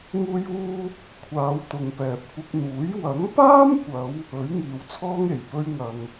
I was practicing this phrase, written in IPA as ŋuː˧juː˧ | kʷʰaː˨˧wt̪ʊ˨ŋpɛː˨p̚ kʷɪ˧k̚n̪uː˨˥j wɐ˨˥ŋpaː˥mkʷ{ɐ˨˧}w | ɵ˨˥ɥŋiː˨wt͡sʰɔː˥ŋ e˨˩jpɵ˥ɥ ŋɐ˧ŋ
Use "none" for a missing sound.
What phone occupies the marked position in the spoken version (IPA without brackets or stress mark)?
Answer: ɐ˨˧